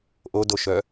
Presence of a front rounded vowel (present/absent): present